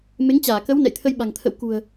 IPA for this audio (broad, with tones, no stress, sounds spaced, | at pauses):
m e˨˦ ŋ t͡ɕ aː˧˩ k ə˨˦ w n ɛ̰˧˨ j t̪ʰ ə˧ j ɓ a̤˨˩ ŋ t̪ʰ ə̰˧˨ w k ṳ˨˩ ə̯